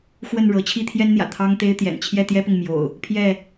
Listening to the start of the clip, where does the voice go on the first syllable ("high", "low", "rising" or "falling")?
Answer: falling